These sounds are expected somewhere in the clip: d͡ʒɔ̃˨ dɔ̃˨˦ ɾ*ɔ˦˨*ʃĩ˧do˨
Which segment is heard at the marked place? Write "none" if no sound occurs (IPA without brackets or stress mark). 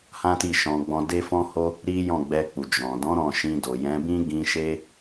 ɔ̃˦˨